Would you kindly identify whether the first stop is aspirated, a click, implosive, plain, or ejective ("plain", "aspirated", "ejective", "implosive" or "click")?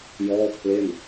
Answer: aspirated